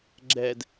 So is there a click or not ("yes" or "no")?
yes